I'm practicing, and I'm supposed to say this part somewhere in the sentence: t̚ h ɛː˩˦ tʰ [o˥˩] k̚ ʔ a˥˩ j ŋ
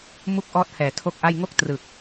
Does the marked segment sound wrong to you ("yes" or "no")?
no